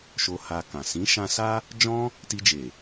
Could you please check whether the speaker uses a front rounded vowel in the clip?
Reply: no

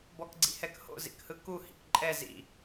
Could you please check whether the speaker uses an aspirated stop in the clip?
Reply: no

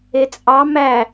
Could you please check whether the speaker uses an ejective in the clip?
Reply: yes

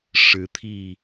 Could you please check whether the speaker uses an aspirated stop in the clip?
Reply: yes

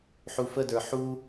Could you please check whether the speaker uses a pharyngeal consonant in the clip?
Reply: yes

